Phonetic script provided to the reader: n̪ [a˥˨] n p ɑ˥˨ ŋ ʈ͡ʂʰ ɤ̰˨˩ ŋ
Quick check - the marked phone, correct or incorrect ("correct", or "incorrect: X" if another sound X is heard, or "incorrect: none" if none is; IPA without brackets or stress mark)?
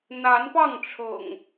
incorrect: a˨˦